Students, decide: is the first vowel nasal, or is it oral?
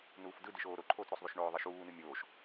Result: oral